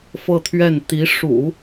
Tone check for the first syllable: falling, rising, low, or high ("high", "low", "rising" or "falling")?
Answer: falling